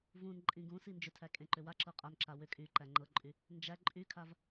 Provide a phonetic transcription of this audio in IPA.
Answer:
vũnǃʼĩ ɡũsi nd͡ʒʏtʰæ kʼẽǃʏwaǁɤ qʼanǁa wʏ kʼyǃæ ŋ͡ǃɤǃʼy | nd͡ʒæ ǃʼykʰav

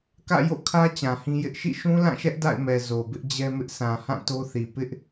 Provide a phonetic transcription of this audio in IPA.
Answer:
kä̰˦˨jo̰˦˨kʰä˦ t͡ɕã˨hĩ˦jɪ˦ʔ ʃḭ˦˨ ʃũ˦lã˦˨ʃɛ˦ʔ da̰˦˨ɪ̯mɛ˨ zo˨bɪ˦ʔd͡ʑɛ˦mɪ˦ʔ sʰã˨hã˦˨ to˦θi˨ pɪ˦ʔ

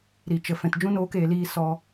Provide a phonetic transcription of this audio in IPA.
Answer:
ɾi˨t͡ʃə˨ fɛ̃˨td͡ʒũ˦ noː˦keː˧liː˦ sɔ˦

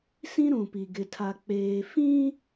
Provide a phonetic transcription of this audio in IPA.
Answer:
sĩ˦ɾũ˨pi˨ ɡɪ˨tʰa˨ k͡peː˨ fĩ˦

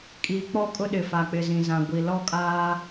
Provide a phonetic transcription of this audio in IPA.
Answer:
kʼiː˨k͡pɔ˦kʼʊ˦ɗɪ˨ fa˨k͡pɪ˨zĩ˨ zã˨ɡʷi˨ lɔ˦kʼaː˦

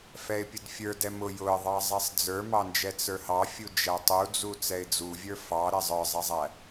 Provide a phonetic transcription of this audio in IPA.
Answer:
fɛɪ̯pʲʊdfʲə˞ dɛmʊ jʊə̯ðˤɑ zˤɛsˤd͡zə˞mɑnd͡ʒɛ t͡sə˞hɑfʲu d͡ʒætˤud͡zu t͡sɛɪ̯d͡zuvʲə˞ fɑ ɾɛzˤə˞zˤɛzˤæ

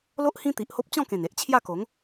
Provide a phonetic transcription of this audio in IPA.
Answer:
lo˦ʔ hĩ˦t̪i˨ʔho˦p̚ t͡ɕɔ̃˥˧kẽ˨˩ne˨ʔ t͡ɕʰja˥˧ko˨˦ŋ

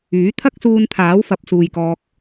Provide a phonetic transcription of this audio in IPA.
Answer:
yː˨˥ t̪ʰɐ˥k̚suː˧nt̪ʰaː˨˥w fɐ˨˥p̚suː˨jkɔː˧k̚

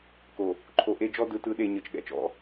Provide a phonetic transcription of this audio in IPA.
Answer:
ko˨ | ǃʰo˨ʔe˦ d͡ʒɔ˦dɯ˨˦ tɯ˨˦ɗe˨ ɲɤ˨t͡ʃɠɛ̰˨t͡ʃɔ̰˦

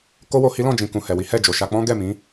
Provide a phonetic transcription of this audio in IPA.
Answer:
ko˦wo˧ hi˦lɔ̃˦˨d͡ʒĩ˨ kũ˨hɛ˨wi˨˦ hɛ˦˨d͡ʒo˨ʃa˧ k͡pɔ̃˦ɡɛ˦˨mĩ˨˦

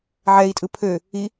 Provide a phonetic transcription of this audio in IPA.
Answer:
ʕɛi̯tʼɯ pʰø | i

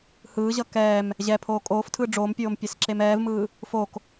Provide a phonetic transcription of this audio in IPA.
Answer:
hɯːʑʌ kɛːm | ʑɛpʰoː kʼoːftʰɯː ɖ͡ʐoːmpʲoːm pʲesǁemɛːvmɯː | fok

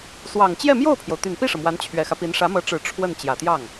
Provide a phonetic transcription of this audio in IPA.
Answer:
swɑ˨˩ŋ t͡ɕjɛ˥˧mjo˥˩ʊ̯pʰjo˩ʊ̯ t̪y˨˩npi˥˩ʂɤ˩ mwa˧˥nt͡ɕʰɥɛ˨˩xä˦pi˧˥n ʂä˧˥mɤ˧˥ʈ͡ʂɻ̩˨˩ ʈ͡ʂʰwə˥˩n t͡ɕjä˨˩t̪jɑ˥˩ŋ

